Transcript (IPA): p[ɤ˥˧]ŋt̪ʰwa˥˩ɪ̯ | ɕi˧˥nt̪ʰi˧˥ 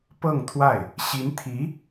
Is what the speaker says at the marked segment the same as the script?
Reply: yes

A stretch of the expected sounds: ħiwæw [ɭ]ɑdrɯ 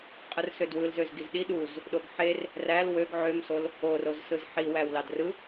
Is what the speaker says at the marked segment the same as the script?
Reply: no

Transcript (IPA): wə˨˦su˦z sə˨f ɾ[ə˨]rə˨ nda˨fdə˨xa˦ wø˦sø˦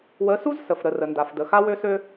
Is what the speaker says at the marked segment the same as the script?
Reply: yes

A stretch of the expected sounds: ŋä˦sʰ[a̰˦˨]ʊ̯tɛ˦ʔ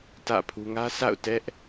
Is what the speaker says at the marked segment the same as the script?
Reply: yes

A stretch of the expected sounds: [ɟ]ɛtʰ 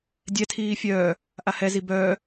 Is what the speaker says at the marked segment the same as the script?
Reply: no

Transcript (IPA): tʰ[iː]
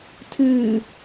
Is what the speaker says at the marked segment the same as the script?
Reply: no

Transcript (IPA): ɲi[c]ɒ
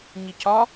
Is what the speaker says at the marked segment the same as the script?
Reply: yes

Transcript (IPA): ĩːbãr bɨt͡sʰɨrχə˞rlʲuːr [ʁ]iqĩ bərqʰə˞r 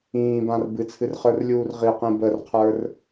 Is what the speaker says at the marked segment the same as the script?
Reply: yes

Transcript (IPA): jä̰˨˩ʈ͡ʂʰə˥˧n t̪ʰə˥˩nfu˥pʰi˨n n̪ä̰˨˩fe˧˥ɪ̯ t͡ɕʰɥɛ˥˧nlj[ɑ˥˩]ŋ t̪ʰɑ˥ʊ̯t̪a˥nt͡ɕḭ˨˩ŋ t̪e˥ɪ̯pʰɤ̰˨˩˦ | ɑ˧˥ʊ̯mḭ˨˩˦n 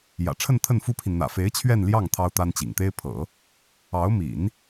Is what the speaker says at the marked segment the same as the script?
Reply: yes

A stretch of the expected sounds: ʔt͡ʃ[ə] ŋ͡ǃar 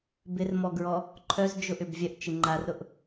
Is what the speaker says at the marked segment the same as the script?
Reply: no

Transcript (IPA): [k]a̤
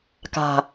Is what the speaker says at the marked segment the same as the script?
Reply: yes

